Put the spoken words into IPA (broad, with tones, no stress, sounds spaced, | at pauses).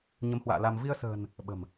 ɲ ə˨˦ m h w a̰ː˧˨ l a˧ m v i˧ ə̯ s ə̤ː˨˩ n | ɓ ə̤˨˩ m